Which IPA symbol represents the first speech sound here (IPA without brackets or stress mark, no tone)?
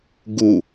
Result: ɡ